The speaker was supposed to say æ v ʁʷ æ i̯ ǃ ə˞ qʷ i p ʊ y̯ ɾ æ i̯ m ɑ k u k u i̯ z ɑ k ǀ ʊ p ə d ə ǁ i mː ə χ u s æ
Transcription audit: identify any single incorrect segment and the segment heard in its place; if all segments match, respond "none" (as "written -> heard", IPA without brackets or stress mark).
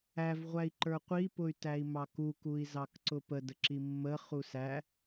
ɾ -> t